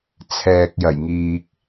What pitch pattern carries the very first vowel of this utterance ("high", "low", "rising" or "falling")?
low